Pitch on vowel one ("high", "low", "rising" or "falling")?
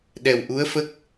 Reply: low